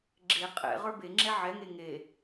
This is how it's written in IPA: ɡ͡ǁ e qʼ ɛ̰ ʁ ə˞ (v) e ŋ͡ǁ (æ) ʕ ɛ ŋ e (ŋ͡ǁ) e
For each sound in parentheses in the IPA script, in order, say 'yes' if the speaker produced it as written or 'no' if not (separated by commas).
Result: no, no, no